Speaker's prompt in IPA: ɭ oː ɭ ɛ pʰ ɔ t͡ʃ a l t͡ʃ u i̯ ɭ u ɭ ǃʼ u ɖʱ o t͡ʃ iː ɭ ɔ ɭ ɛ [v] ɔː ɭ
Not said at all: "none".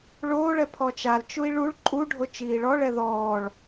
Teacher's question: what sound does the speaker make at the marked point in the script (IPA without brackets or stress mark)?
ð